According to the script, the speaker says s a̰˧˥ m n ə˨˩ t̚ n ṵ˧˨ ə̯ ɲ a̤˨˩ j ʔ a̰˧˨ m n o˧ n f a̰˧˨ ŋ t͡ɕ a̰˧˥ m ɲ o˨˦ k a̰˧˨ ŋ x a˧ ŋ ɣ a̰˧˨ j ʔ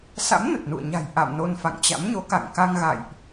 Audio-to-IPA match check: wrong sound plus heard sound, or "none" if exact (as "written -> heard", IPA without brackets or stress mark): x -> k